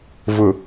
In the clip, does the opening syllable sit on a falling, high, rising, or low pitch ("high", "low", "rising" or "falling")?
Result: low